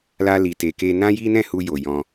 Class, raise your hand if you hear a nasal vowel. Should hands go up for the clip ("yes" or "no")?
yes